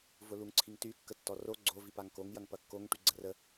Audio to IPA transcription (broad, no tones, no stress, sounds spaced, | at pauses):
v ʊ l u ŋ ǀʰ i ŋ t y kː ə tː ɔ r o ɡ͡ǀ o v i p a ŋ k o ŋ j ɐ ŋ p ɐ kː o ŋ ʈ y ɡ͡ǀ ə r ə